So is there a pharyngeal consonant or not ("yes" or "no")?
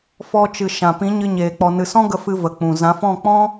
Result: no